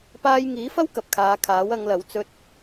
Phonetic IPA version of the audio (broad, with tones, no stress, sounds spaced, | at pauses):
p aː˥ j ŋ iː˨˥ f ɐ˥ w k ɐ˨ p̚ kʰ aː˨˧ kʰ aː˨˥ w ɐ˨˧ ŋ l ɐ˨˥ w t͡s ɵ˧ t̚